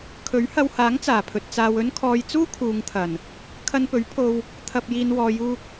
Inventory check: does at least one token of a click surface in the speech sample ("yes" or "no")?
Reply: no